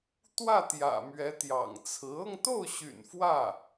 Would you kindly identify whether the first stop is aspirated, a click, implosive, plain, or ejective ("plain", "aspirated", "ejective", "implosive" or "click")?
plain